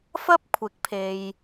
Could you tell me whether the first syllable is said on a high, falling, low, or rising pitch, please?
high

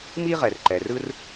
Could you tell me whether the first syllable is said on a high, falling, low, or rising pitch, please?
high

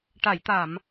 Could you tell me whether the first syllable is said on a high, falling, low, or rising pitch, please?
low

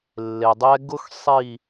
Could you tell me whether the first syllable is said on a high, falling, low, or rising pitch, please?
low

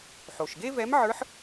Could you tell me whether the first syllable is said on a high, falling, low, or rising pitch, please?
low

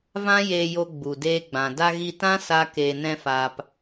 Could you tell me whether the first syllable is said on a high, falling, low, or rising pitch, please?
high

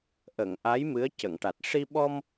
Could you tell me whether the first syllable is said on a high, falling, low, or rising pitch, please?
low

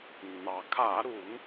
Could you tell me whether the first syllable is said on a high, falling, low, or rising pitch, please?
low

